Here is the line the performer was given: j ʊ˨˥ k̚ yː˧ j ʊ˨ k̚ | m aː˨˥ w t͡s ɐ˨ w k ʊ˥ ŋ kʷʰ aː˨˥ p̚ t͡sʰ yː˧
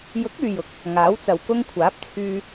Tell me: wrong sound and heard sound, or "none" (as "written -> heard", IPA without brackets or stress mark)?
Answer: m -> ŋ